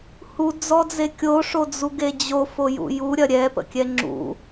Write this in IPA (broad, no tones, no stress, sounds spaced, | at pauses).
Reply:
h u d͡z ɔ d͡z e kʲ o ʂ o d͡z u ɡ e d͡ʑ o f o j ṵ j u ɾʲ ɐ ɾʲ ɛ p ə̰ kʲ ɛ ŋ͡ǁ ṵ